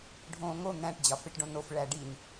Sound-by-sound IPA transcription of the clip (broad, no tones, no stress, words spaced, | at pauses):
ɖʱõːŋo n̪æ̃ʈ d͡ʑɒfeʈɖõnof ɭæɖin